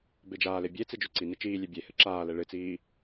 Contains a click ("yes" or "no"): yes